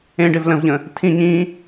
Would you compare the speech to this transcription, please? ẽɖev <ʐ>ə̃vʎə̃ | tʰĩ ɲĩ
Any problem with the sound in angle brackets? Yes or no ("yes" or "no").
yes